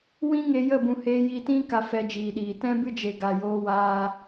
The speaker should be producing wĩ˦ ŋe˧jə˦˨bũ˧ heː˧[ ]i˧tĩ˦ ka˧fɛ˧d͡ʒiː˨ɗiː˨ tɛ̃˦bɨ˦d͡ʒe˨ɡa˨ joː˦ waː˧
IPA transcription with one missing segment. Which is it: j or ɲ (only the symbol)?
j